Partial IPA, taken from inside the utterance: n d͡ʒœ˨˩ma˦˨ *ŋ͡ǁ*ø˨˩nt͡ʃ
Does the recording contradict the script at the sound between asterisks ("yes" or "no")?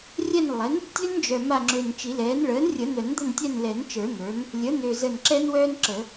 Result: no